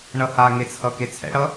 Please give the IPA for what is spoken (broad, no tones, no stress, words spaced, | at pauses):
ɳʌhaŋet͡sʰʌ ket͡sʰɛ̰ɽʌ